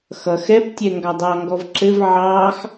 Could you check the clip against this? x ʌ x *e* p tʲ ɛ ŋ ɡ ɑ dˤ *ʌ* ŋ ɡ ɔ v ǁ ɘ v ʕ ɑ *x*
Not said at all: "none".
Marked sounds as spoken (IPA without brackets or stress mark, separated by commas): ɛ, ɑ, x